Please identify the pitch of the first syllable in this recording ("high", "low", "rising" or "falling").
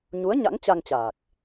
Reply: rising